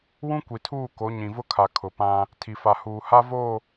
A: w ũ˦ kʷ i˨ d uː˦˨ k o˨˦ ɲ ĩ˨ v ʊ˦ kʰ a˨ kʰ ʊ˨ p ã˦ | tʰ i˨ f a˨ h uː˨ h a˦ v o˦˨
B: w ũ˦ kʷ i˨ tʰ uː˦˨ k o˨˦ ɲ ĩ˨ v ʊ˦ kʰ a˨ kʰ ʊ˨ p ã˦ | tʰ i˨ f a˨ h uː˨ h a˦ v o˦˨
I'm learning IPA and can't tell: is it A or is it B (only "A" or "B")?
B